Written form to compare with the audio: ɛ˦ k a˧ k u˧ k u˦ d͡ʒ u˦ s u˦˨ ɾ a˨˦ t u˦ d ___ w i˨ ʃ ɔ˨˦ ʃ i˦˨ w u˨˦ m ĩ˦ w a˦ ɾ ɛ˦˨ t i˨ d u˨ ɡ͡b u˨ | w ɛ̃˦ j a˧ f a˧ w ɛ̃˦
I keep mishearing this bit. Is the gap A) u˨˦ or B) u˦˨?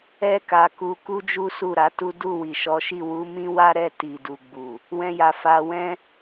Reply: B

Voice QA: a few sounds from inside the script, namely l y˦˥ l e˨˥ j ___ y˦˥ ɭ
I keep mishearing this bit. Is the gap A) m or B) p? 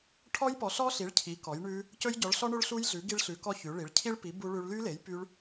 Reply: B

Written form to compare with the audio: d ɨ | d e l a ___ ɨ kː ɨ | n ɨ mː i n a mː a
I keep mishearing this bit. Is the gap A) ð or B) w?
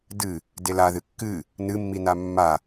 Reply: A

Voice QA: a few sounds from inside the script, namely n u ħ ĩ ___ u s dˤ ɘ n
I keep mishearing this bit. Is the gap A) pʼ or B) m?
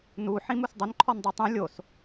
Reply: B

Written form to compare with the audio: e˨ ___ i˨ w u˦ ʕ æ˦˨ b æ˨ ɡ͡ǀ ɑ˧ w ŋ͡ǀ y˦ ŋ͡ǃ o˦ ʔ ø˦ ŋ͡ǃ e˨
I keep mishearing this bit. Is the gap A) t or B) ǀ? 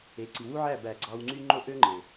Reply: B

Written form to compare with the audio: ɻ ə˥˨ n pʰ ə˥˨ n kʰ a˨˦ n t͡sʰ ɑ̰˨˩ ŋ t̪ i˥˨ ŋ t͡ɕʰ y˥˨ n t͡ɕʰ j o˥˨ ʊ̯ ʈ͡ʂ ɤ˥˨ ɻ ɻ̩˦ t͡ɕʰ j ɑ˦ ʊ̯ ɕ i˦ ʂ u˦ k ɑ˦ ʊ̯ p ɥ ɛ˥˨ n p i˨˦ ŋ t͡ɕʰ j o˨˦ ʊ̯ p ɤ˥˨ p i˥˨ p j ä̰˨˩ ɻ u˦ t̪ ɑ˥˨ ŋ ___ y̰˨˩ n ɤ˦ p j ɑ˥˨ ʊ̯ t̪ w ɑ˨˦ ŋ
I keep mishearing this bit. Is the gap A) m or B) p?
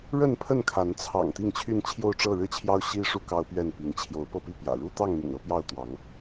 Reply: A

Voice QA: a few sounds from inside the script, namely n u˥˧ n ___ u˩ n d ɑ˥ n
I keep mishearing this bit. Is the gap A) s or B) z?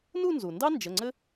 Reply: B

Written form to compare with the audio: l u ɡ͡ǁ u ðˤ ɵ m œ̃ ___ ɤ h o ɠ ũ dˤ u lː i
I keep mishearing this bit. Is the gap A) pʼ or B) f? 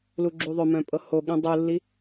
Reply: A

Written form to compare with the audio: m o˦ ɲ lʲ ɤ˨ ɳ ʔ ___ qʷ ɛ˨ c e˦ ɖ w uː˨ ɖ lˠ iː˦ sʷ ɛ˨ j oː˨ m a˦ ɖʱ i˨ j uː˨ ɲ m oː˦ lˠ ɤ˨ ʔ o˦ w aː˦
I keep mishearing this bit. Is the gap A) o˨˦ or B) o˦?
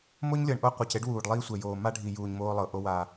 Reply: B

